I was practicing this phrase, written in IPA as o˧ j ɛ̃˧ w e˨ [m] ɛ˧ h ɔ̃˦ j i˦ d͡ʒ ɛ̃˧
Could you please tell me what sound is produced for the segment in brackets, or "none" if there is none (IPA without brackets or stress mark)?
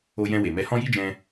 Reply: m